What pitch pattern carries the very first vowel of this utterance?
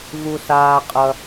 low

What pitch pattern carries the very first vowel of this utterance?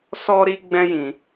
high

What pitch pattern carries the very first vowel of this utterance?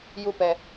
high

